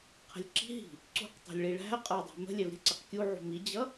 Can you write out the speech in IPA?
qʰ ə̤ lʲ ǁ i̤ ɦ i̤ | ǀ ṳ q tˤ ṳ lʲ ɭ i ɭ æ̤ ɐ̯ qʼ ə˞ dˤ æ̤ m ə̤ lʲ ɛ v ɾʲ ə̤ ǀ ɪ q kʲ u ʕ ṳ m i d͡ʑ ʌ

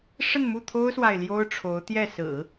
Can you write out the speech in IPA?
ʂ ə˥˧ n m u˥˩ t̪ʰ o˥ ʊ̯ s w a˨ ɪ̯ l j o˥ ʊ̯ ʈ͡ʂʰ o˧˥ ʊ̯ t̪ j ɛ˥˩ s ɹ̩˨˩˦

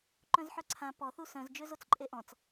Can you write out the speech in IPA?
ǃ œ̃ z ħ œ ǀʰ ã p ɔ θ u s œ̃ z d͡ʒ ø z o t͡s ǃʼ e ʔ ɔ̃ t͡s

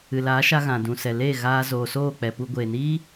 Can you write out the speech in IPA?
ɨ˨ l aː˨˦ ʃ a˧ ɣ ã˨ d ũ˨ s ɛ˨ l eː˦˨ ɣ aː˧ z oː˨ s oː˦˨ k͡p ɛ˨ p u˧ ɡʷ eː˨ n iː˦

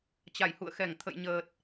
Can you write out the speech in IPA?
t͡ɕ a˧˩ j h ṵ˧˨ ə̯ x ɛ˧˩ ŋ t̪ʰ ə̰˧˨ j ɲ əː˨˩ t̚

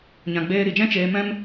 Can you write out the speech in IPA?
ɲ ã˨ ɡ͡b eː˧ ɾ i˨ d͡ʒ ɛ̃˦ t͡ʃ eː˧ m ɛ̃˦ m

